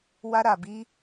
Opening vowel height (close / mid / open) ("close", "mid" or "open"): open